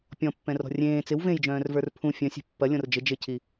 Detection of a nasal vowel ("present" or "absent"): present